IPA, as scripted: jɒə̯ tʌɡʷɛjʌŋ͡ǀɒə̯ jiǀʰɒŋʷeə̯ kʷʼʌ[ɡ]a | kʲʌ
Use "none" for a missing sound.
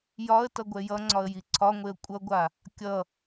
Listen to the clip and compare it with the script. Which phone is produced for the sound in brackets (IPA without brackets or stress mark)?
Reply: ɡʷ